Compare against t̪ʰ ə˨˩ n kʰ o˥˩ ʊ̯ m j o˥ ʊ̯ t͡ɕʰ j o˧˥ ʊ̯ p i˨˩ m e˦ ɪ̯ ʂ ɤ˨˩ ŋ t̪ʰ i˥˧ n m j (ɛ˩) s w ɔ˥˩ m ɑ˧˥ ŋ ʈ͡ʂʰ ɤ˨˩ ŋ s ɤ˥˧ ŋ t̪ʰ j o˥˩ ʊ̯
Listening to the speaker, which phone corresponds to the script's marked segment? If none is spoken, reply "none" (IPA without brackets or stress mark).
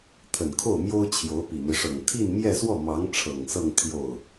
ɛ˥˧